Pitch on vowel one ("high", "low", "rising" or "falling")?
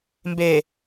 low